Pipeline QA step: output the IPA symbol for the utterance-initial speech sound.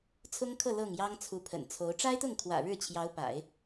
t͡sʰ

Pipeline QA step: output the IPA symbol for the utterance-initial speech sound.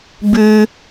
b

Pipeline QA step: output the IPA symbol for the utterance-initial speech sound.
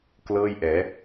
k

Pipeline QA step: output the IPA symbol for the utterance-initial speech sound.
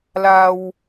l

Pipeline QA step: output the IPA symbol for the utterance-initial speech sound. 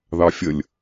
ð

